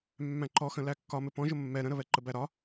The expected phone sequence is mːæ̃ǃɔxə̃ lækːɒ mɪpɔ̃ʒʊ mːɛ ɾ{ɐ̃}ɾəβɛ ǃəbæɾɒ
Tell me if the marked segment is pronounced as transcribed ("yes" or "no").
no